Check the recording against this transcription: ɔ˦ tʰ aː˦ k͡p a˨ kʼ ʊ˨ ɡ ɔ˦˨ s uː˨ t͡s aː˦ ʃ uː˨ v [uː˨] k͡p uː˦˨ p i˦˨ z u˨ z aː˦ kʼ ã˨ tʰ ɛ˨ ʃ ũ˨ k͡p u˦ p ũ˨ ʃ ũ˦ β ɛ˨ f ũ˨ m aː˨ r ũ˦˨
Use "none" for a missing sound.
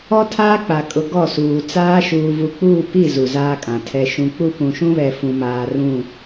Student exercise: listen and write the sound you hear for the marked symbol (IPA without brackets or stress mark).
u˨